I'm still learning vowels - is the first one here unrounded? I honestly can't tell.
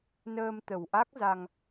yes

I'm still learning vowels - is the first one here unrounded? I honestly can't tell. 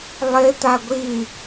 yes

